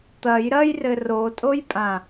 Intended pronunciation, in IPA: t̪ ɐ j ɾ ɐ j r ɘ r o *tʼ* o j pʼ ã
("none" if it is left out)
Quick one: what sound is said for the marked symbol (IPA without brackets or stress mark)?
tʼ